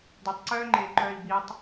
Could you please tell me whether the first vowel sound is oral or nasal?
oral